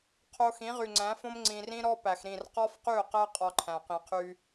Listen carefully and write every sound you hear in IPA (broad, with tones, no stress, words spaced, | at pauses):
qʰo˧ xĩ˨˦ʁy˨ ŋ͡ǀæ̃˨˦fõ˦m ŋ͡ǀĩ˨rĩ˦ɾɔ˦ pæ˨xɾĩ˦˨r qɒ˦fqy˦˨ʊ̯qæ˦ qʼɒ˦ ǃʰæ̃˨qĩ˨qʰy˦